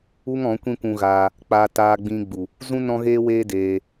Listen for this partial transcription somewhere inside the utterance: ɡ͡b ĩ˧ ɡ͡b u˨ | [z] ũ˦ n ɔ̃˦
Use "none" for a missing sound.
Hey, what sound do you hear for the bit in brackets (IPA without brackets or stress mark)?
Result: z